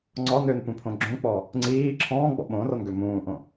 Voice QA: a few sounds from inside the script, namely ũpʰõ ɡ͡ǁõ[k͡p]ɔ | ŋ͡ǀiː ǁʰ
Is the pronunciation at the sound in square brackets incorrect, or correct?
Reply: correct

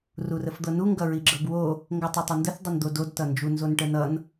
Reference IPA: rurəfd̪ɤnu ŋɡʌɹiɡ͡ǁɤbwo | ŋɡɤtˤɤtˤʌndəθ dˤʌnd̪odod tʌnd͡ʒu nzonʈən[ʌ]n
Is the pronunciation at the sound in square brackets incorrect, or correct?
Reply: correct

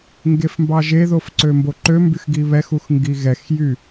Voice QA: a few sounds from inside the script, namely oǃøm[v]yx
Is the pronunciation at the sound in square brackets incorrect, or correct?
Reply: incorrect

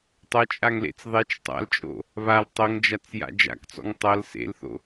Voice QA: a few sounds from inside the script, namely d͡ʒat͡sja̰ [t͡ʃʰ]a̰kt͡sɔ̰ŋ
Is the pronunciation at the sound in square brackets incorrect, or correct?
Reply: incorrect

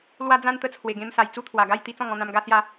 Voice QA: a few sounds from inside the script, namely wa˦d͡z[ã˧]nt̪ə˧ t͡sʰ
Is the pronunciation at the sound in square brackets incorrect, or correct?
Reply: incorrect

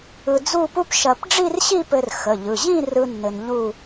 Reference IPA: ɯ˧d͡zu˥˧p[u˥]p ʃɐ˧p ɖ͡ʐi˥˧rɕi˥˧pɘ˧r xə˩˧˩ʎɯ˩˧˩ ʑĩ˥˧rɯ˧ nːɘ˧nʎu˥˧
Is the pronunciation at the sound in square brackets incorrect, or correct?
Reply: correct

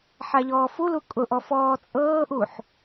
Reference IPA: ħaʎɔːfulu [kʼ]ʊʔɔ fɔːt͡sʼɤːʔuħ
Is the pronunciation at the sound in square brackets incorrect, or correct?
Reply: correct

